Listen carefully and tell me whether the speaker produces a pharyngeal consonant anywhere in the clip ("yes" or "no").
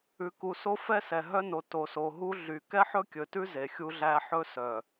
yes